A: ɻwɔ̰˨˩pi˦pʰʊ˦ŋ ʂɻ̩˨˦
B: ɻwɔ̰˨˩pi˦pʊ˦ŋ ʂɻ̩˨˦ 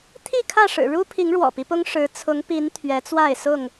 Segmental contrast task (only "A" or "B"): B